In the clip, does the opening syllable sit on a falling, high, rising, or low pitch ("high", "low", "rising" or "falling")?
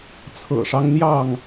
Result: low